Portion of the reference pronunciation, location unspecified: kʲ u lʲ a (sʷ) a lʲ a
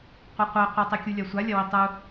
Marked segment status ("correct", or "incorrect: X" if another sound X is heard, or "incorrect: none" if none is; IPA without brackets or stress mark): correct